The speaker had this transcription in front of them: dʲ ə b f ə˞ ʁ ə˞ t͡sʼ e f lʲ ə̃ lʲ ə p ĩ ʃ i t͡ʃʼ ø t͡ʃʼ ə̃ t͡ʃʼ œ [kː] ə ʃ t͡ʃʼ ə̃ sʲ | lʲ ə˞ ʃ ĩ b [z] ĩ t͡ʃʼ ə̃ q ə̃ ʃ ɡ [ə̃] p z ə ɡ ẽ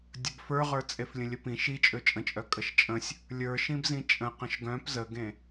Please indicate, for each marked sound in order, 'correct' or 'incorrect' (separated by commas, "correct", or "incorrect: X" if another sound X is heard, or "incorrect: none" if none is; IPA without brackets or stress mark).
incorrect: kʼ, correct, incorrect: œ̃